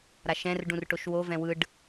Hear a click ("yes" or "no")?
no